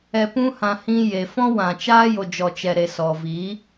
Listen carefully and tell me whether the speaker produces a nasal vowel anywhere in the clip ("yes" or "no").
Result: yes